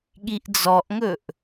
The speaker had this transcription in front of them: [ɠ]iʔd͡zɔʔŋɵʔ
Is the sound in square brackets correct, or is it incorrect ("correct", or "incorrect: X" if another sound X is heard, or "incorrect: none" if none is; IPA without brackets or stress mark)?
correct